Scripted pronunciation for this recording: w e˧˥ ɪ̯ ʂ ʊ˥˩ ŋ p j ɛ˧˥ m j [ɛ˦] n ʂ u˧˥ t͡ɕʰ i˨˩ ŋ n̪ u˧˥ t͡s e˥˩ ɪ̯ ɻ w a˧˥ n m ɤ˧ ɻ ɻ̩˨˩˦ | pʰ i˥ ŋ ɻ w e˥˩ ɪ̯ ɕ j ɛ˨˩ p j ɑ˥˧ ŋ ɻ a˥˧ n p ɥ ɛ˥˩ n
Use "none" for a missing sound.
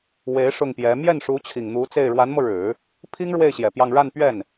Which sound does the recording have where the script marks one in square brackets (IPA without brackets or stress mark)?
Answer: ɛ˥˩